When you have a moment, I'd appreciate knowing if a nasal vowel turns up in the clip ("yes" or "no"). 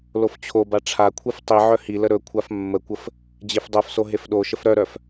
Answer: no